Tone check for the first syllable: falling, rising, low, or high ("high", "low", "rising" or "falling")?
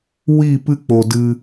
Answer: falling